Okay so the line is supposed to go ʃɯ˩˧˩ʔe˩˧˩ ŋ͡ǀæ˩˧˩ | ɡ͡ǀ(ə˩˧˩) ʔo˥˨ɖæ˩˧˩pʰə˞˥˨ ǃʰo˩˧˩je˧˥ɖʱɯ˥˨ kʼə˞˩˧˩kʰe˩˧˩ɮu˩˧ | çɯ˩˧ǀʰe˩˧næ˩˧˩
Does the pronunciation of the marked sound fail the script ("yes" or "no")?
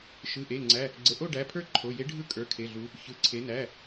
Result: no